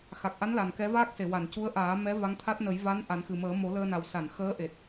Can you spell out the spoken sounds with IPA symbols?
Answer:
x a˨˩ k̚ ʔ a˧˥ n l a˨˩ n k ɛ˧˥ v aː˦˥ k̚ s e˨˩˨ w a˨˩˨ n c u˧˥ ə̯ ʔ aː˨˩˦ m ɛ˧˥ v a˧˥ ŋ t̪ʰ a˦˥ t̚ n ə˨˩˦ j v a˧˥ n ʔ a˨˩˦ n x ɨ˨˩ m əː˨˩˦ m o˨˩˦ l əː˧ n a˨˩ w s a˨˩˨ n x əː˧˥ ʔ e˨˩ t̚

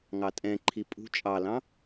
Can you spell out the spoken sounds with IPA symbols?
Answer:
ŋ ɑ tʼ ɛ̃ ǃʰ i pʼ ṳ t͡ʃʼ ɑ l ɑ̃

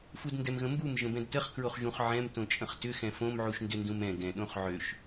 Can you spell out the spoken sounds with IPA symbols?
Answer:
f u d n d ɛ m ɣ ə̃ m b u m ʒ ə̃ b ɛ̃ d t ə χ k ɹ o χ ʒ ũ χ ʕ ɛ̃ m t õ t͡ʃʼ ə̃ χ t ʏ x ɛ̃ f õ m ʕ u ʃ n d ʏ n d ũ m ɛ̃ ɡ ɛ̃ ɗ õ χ ʕ ø ʃ

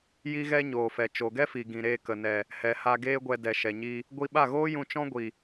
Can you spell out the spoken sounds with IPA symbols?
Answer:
j i˦ ɣ ɛ˦ ɲ oː˨ f ɛ˨ t͡ʃ o˨ ɡ ɛ˦ f i˨ ɡ ĩ˨ ɾ eː˧ k ə˨ n ɛ˨ | h ɛ˨ h a˧ ɡ eː˦ ɡʷ ɛ˧ d ɛ˨ ʃ ɛ˨ ɲ i˧ | ɡʷ i˧ ɓ a˦˨ ɣ oː˦ j ũ˧ t͡ʃ ɔ̃˦ ɡʷ i˨

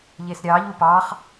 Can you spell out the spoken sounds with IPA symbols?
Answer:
ʎ e s ɾʲ ɑ ʎ u p ɑ χ

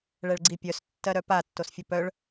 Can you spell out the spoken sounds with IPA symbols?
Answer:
ɭ ɛ ɭ ɡ͡ǀ i pʲ œ s tː ɜ ɾ œ p a tː o s fʲ o p œ ɭ

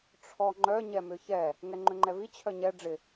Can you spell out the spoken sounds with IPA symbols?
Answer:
ʈ͡ʂʰ ɔ ŋ͡ǃ œ ɲ ɛ m ʏ ç ɛ | ŋ ɛ ŋ͡ǃ ʏ ŋ͡ǃ ɛ v i t͡ɕʰ œ ɲ ɛ ɖ͡ʐ ɪ

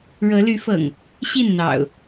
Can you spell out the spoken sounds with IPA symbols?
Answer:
ɻ ɤ˨˦ l y˨˦ f ɤ̰˨˩ ŋ | ɕ i˥˨ n n̪ ɑ̰˨˩ ʊ̯

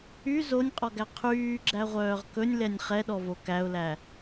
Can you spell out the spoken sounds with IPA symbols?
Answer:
y z o nʲ qʼ ɔ ɡ æ qʰ yː ɡ͡ǁ æ ʁʷ œː ʁ k ɵ nʲ l ɛ nʲ χ ɛ ɗ ɔ v o k æ ʊ̯ l æ

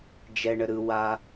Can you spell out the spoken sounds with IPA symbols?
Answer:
d͡ʒ ɛ ɳ ə ɾ ɯ w a

